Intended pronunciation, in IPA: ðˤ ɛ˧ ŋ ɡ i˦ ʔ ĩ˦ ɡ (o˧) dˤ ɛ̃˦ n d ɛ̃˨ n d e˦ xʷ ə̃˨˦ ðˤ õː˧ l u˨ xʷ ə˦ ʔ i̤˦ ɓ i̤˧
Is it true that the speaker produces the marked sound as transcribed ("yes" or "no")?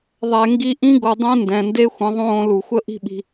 yes